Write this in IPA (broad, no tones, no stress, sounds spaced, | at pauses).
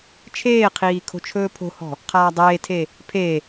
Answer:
t͡ʃʰ eː qʰ iː kʰ o̤ t͡ʃʰ ɵː pʰ o̤ h ɔ̤ | qʰ aː dˤ eː tʰ e | pʰ e